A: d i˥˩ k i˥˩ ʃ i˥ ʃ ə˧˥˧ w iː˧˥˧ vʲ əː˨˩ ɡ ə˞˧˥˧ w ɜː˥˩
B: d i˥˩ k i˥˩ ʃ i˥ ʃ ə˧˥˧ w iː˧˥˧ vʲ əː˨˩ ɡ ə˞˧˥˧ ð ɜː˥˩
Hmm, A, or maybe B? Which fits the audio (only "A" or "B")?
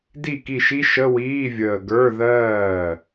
B